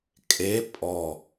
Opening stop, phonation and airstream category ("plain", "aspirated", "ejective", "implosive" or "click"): ejective